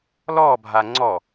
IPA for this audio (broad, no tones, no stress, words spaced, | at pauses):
lɔbʱa ŋ͡ǀɔ